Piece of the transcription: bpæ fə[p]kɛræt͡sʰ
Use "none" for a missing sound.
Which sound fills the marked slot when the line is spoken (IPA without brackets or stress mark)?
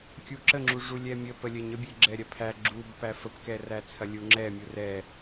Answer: p